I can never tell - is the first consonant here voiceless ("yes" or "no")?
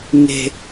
no